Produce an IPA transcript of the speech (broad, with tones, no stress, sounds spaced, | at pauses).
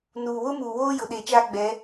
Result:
n uː˨ w ʊ˦ m uː˨ w oː˦ j ʊ˨ ɗ e˨ t͡ʃ aː˦ ɡ͡b ɛ˨˦